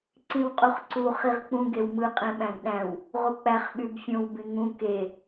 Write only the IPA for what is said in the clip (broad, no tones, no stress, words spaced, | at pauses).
ǀĩwqʼuχǀu χiʁk͡pũ ɡewmɯ qʼẽɓæ̃ɡɗæ̃w | ʁuk͡pæχ ɓybfʲõw bĩŋũ ke